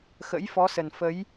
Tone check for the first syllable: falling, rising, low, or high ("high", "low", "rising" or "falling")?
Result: rising